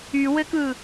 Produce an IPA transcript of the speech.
y w ɘ k ɯ

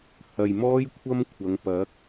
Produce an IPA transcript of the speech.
h ɐ˨ j m ɔː˥ j kʷʰ ɐ˥ m kʷʰ ɐ˨˧ ŋ p ɐ˨˥ k̚

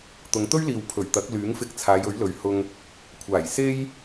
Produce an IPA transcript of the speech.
t̪ ʊ˨˧ ŋ t̪ ɵ˥ ɥ l iː˨ w pʰ ɵ˨˩ ɥ t̪ ɐ˨˥ k̚ l yː˨˥ ŋ f ɪ˧ k̚ t͡sʰ aː˨˧ j ɵ˨˥ ɥ l ɵ˨˧ ɥ h ʊ˧ ŋ | kʷʰ aː˨˩ j s e˥ j

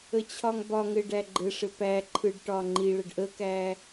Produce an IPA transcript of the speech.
ə t͡ɕʰ ɒ ŋ b ɒ ŋ ɘ ɖ æ ɡ͡ǃ ɘ ʂ ɘ p æ ǃʰ ɯ ɖ ʈ ɒ ŋ͡ǃ i ɭ ə ɖ ʔ ə k æ

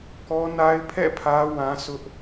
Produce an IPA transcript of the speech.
k ɔ˦ n a˦ ɪ̯ pʰ ɛ̰˦˨ pʰ ä˦ w ã˦ s ʊ˦ ʔ

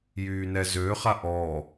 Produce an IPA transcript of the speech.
j yː n ɛ z øː χ a ʔ ɔː

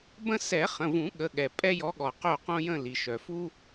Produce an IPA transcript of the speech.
b ə̃˦ s ɛ˨˩˦ χ ə̃˩˧˩ v ũ˨˩˦ ɠ ə˩˧˩ ɠ ɛ˩ pʼ ɛ˦ j ɔ˨˦ ɠ ɔ˩ q o˦˨ q õ˦ j ə̃˦˨ l i˩ ʃ œ˩ f u˦

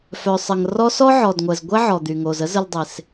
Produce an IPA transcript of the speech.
f œ˩ sˤ ə˩ ŋ r ɔ˦ s ɔ˥ ʕ ɔ˩ d ŋʷ ɛ˩ z ɡʷ ɛ˥ ʕ ɔ˩ d̪ y˩ ŋ o˩ z ə˥ z ə˨ l dˤ e˩ s

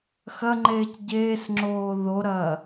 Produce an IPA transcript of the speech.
x ɐ ŋ͡ǃ eː c ɟ eː s ŋ͡ǁ oː ð o ɾ ɐː

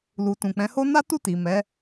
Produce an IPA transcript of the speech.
l u˨ t ũ˨ k͡p ɛ̃˨˦ h o˦ n a˦ t u˦˨ t i˨ m ɛ˨˦

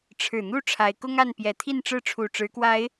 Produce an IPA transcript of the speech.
ʈ͡ʂʰ ɻ̩˨˩ n̪ u˥˨ ʈ͡ʂʰ a˨˦ ɪ̯ k ʊ˦ ŋ a˥˨ n p j ɛ˨˦ t̪ʰ i˥˨ n ʈ͡ʂ ɻ̩˥˨ ʈ͡ʂʰ u˨˩ ʈ͡ʂ ɻ̩˨˦ k w a˨˦ ɪ̯

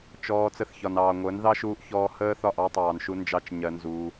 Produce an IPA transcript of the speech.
t͡ʃ ɔː˧ t͡s ə˧ θ ç ɒ˨ n ɑː˨ ŋʷ əː˨˦ n ð ɑ˦ ʃ uː˧ ʔ ç ɔː˧ h əː˦ θ ɒ˦˨ ʔ ɑ˦ tˤ ɑː˨ n ʃ u˧ n d͡ʒ ɑ˦ t͡ʃ ɲ ɜ˧ n z uː˧

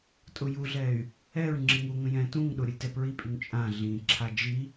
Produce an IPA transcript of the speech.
tʼ ʊ j u ɮ ɛ y̯ | ɛ ɹ ŋ͡ǁ i ŋ u ŋ ə̃ j ɛ̃ t ũ ŋ ɗ ʊ ɾʲ ə lʲ t ɛ p ɹ i pʼ y ŋ t͡ʃʼ ã ɮ ĩ ǁʰ a d͡ʒ i

